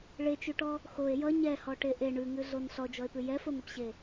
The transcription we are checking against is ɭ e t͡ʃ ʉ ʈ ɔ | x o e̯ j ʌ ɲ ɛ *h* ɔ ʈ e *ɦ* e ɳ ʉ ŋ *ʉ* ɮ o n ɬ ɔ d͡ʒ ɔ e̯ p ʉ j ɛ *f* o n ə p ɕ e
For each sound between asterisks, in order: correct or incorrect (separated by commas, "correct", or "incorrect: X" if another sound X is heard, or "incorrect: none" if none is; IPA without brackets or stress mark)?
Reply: correct, incorrect: ʔ, correct, correct